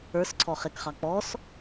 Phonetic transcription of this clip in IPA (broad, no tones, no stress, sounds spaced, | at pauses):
ə˞ s ǀʰ ɔ χ e k χ ɑ k͡p ɔ s